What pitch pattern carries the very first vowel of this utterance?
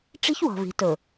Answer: high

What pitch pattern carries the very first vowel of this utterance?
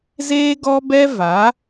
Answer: high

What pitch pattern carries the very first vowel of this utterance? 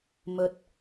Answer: rising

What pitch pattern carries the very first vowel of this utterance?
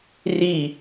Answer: falling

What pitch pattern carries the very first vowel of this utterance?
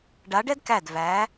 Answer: rising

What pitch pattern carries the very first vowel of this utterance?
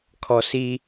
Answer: low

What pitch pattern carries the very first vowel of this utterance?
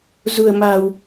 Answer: low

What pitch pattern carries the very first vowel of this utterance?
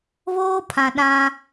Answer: high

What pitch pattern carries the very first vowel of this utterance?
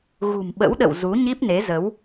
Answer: low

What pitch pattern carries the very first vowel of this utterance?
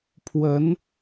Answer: rising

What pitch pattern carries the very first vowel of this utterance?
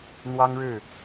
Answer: high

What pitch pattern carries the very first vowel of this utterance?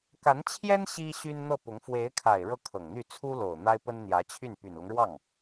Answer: rising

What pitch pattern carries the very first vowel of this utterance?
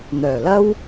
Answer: low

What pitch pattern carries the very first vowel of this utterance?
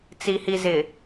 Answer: low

